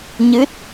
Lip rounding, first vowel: unrounded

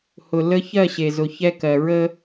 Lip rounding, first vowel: rounded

